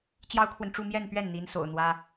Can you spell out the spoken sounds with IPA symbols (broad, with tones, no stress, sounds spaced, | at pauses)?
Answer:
t͡ɕ j ɑ˥ ʊ̯ kʰ w ə˨ n ʈ͡ʂ u˥˧ m j ɛ˥˧ n p ɥ ɛ˥˩ n n̪ i˧˥ n s o̰˨˩ ʊ̯ n̪ w ä˥